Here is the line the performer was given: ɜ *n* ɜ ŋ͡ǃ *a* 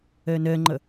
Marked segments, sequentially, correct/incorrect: correct, incorrect: ʌ

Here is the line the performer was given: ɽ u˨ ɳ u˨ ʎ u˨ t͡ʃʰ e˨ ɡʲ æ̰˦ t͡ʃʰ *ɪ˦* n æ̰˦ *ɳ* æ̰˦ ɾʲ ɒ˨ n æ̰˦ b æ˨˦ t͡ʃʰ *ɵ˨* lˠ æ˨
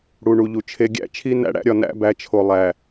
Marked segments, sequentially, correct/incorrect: incorrect: i˦, incorrect: ɽ, incorrect: o˨

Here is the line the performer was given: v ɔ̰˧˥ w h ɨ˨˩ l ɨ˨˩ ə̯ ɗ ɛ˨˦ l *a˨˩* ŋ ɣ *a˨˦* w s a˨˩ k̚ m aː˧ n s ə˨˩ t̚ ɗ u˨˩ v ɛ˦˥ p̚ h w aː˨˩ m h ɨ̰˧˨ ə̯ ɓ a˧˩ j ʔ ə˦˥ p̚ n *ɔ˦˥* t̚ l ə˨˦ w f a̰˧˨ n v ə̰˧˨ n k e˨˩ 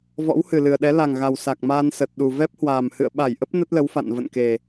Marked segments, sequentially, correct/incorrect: correct, incorrect: a˨˩, incorrect: ə˦˥

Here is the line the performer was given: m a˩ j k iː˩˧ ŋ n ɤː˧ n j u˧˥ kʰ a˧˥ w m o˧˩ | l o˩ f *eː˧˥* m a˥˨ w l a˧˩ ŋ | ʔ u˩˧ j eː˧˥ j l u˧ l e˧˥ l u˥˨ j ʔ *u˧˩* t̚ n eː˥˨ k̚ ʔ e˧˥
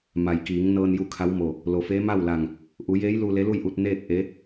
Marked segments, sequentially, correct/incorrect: correct, incorrect: u˧

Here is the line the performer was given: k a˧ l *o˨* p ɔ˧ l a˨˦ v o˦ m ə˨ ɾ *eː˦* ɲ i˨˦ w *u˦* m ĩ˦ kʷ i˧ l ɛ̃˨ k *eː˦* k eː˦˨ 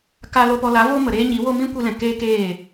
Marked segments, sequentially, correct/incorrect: incorrect: o˧, correct, incorrect: o˦, correct

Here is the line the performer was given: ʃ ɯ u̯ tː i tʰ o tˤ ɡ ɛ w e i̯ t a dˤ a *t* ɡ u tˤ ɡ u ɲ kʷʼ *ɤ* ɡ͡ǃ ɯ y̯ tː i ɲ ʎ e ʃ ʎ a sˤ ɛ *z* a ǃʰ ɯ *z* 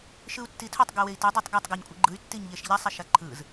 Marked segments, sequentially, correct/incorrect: incorrect: tˤ, incorrect: ɯ, incorrect: ʃ, correct

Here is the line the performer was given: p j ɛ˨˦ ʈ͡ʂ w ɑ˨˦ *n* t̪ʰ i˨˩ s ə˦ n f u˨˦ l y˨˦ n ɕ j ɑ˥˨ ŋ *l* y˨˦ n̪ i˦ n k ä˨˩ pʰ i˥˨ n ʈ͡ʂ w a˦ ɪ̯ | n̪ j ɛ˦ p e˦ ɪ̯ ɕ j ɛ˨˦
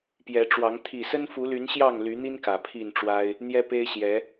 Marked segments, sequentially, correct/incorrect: incorrect: ŋ, correct

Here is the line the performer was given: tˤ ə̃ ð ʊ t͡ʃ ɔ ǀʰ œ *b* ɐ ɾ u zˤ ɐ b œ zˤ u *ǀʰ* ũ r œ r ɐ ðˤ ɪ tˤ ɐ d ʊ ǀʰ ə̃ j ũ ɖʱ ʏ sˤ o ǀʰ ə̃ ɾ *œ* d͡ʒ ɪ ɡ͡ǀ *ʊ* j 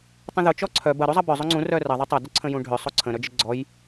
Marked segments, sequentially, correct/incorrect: correct, incorrect: ŋ͡ǀ, correct, incorrect: ɔ

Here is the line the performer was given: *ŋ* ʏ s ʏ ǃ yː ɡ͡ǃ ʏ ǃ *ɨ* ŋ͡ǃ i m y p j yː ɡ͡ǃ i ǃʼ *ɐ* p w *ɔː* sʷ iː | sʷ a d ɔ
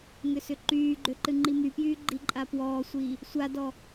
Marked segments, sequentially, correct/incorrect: correct, correct, incorrect: a, correct

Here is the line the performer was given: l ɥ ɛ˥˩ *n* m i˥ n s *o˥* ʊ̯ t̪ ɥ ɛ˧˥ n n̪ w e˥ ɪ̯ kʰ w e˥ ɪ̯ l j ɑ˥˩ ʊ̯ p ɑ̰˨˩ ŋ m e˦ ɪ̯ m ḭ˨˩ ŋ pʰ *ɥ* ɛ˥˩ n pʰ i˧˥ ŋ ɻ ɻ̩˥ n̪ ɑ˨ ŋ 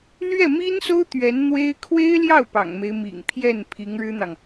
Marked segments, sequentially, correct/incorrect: incorrect: none, correct, incorrect: j

